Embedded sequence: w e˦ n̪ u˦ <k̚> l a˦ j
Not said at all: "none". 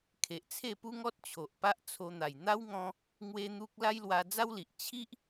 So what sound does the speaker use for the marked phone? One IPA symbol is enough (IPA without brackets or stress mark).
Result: k̚